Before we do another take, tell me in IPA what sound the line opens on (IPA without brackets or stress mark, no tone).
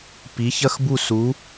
p